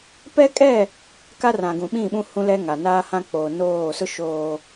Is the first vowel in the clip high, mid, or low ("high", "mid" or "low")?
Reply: mid